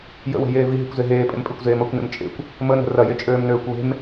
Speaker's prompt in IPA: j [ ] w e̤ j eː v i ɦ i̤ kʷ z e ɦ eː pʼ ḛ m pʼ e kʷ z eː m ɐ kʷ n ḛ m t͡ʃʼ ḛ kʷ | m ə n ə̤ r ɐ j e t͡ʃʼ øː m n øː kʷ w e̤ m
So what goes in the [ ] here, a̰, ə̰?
ə̰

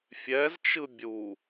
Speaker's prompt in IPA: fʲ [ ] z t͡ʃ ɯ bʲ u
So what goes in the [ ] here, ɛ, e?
ɛ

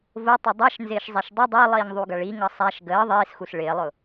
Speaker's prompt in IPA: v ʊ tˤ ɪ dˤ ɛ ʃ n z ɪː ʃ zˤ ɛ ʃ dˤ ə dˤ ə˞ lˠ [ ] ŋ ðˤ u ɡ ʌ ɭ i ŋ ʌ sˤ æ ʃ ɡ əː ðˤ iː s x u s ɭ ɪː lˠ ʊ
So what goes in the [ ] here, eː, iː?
iː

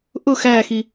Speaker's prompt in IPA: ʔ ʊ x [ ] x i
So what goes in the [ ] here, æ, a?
æ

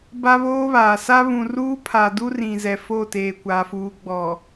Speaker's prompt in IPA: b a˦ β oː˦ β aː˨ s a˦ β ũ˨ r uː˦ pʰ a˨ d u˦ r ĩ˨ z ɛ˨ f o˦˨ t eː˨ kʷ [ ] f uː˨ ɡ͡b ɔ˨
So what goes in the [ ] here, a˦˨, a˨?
a˨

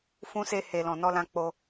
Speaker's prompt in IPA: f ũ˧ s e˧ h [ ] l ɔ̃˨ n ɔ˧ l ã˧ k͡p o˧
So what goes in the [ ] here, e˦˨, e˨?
e˨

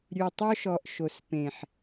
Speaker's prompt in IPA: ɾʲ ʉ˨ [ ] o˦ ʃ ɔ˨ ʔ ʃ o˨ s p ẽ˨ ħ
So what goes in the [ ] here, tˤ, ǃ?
tˤ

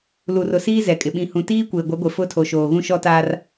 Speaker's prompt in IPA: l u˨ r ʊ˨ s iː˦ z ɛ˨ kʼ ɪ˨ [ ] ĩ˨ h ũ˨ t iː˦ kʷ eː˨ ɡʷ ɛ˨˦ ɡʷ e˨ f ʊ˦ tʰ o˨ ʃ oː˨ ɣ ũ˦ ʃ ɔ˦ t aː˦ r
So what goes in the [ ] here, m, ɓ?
ɓ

